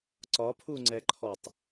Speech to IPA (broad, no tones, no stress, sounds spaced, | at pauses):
ǀ ɒ pʰ u ŋ͡ǀ ɛ ǃʰ ɔ tˤ